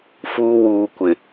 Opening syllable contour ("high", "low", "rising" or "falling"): low